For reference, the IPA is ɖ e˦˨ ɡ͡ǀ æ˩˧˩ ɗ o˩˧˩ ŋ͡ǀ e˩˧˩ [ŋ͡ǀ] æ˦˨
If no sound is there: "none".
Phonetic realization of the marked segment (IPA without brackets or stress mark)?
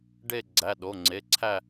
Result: ǀʰ